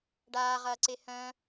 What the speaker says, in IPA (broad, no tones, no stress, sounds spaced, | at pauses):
ɖ aː ʁ ɐː ǀ e h œ̃